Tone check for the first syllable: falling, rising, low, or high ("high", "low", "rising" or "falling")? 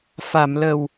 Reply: low